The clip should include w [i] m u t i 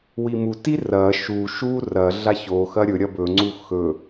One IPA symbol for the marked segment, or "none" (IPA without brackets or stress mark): i